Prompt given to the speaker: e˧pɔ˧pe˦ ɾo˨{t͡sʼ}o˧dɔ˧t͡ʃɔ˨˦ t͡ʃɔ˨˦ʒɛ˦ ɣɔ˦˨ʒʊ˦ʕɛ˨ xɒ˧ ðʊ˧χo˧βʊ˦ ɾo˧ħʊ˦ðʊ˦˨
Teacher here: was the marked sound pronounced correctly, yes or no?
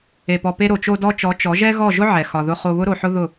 no